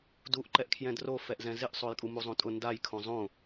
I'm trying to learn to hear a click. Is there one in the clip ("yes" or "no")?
yes